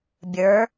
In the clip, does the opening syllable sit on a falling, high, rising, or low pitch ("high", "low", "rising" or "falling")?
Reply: rising